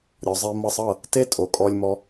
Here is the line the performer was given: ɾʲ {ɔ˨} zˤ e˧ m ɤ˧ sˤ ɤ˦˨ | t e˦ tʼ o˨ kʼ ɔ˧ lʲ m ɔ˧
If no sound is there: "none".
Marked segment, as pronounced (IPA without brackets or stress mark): ɔ˨